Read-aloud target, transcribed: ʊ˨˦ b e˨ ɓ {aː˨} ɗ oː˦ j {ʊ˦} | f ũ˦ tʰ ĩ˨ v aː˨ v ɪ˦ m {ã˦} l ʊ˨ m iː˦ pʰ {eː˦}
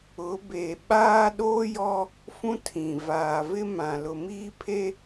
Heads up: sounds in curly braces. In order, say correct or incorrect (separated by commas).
incorrect, incorrect, incorrect, incorrect